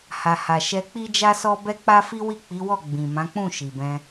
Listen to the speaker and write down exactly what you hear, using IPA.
h a˨ h a˨ ʃ ɛ˧ k͡p i˦ d͡ʒ a˦ s ɔ˦ b ɛ˦ k͡p a˦ f i˦ w i˦˨ k͡p i˨˦ w ɔ˦˨ ɡ͡b ĩ˨ m ã˨˦ k͡p ũ˦˨ ʃ i˨ b ɛ̃˧

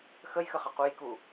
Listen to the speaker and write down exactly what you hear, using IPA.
x ə j x ə χ ɐ q u j k u

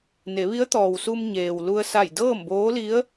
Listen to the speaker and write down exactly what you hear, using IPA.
n e˩˧ ʋ i˧˥ ə̯ t̪ ɔː˩ w s u˧ m ɲ eː˩ w l u˧ ə̯ s a˧˩ j d ɤː˥˨ m b oː˧˥ l i˧˥ ə̯

